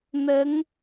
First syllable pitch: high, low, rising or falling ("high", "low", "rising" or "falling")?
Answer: rising